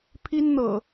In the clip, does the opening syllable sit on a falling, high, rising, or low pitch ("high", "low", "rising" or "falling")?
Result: high